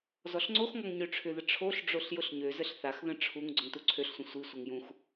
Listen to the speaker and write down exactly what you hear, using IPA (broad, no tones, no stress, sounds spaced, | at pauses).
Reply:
z ɔ ɬ ŋ͡ǀ o x ŋ ɔ ŋ ɲ ø ʈ͡ʂʰ ʏ ð ə ʈ͡ʂʰ o ɬ ɖ͡ʐ o ɬ j ʊ ɬ ɲ ø z ə ɬ θ a x ð ə̃ ʈ͡ʂʰ u ŋ ɡ͡ǀ ʊ ŋ t u ǀʰ ø ɬ sʷ ə̃ sʷ i sʷ ə ŋ j ũ x